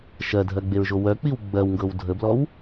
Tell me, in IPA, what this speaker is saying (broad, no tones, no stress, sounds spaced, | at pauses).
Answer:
ʃ ɜ dʱ ɜ ɡ͡b e ɹ ʒ o w œ k͡p i w ɡ͡b ɜ w ŋ ɡ ɤ w dʱ ə b l ɔ w